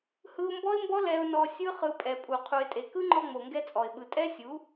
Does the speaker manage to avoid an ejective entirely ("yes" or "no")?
no